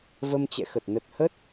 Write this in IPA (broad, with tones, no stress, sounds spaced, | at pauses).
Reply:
v ə˧ m t͡ɕ ɛ̰˧˨ x ə˨˩ t̚ n ə˨˩ t̚ h ə˦˥ t̚